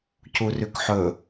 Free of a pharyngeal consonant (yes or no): no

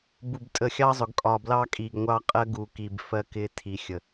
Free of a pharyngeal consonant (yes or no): yes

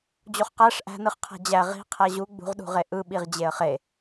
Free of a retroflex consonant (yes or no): no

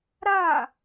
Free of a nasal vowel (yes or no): yes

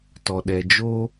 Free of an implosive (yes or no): no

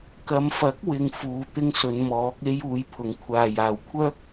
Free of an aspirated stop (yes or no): no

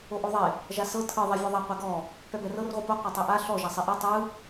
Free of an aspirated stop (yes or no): no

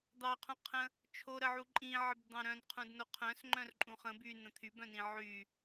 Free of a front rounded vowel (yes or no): no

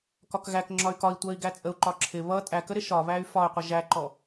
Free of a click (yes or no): no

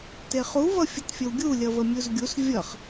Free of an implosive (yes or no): yes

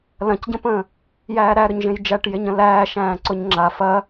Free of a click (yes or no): no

